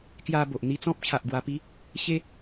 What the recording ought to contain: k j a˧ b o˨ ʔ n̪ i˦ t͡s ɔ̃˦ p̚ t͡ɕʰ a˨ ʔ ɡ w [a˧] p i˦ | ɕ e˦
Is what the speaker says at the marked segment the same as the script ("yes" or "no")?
yes